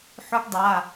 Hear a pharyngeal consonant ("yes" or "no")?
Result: yes